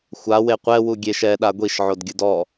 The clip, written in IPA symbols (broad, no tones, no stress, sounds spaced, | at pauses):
xʷ a w e qʷ ɛ w u ɡʲ e ʃ ɛ ɗ a ɡʷ i ʃ ʕ o d ɡʲ ɯ d ɔ